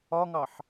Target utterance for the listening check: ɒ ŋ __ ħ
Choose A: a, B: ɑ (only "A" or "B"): B